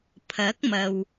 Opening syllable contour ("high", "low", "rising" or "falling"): rising